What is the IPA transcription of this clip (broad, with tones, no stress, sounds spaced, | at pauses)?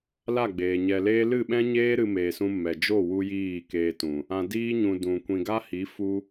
l a˦˨ ɡ͡b eː˨ ɲ ɛ˨ l eː˦ l ɨ˦˨ ɓ ɛ̃˦ ɲ eː˦ ɾ ɨ˧ m eː˨ s ũ˧ m ɛ˨ d͡ʒ o˦˨ w u˧ j iː˦˨ k eː˧ t ũ˨ | ã˨ d iː˧ ɲ ũ˨ d ũ˨ kʷ ĩ˧ ɡ a˦ h i˨˦ f u˧